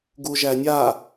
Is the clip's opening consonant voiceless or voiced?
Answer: voiced